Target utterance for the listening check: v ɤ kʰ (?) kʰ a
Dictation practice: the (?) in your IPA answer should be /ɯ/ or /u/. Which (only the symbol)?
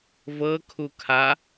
u